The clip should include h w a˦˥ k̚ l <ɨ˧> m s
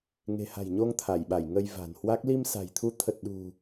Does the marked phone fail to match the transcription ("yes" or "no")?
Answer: yes